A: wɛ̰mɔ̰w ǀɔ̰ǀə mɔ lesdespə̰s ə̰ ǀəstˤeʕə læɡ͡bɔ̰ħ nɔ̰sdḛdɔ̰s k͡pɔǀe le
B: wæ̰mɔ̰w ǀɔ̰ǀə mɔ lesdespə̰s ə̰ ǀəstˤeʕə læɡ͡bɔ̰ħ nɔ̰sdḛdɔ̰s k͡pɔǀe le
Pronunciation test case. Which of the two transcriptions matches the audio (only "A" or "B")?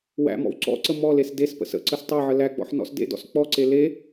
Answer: B